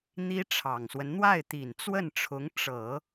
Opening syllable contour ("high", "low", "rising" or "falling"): high